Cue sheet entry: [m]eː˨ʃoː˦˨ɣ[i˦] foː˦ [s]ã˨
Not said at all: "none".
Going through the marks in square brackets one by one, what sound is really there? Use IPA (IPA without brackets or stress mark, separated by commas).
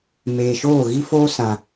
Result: m, i˦, s